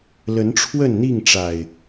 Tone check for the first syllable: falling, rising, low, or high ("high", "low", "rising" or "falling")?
rising